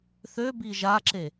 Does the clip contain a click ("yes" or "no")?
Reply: yes